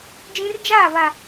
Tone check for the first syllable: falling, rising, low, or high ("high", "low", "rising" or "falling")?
high